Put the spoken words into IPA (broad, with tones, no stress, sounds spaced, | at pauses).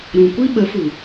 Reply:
ɾ ũ˨ kʷ i˦ ɓ ə˨˦ f u˨